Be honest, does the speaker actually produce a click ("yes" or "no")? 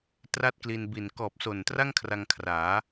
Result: no